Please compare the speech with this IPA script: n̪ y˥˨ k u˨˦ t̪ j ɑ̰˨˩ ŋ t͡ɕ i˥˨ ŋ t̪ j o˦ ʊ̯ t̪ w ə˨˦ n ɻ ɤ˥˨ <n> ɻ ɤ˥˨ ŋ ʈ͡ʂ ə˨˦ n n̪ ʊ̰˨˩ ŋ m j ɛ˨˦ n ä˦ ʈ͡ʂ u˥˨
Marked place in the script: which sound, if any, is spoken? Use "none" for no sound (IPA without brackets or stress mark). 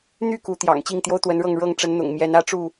ŋ